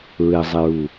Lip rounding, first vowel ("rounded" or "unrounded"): unrounded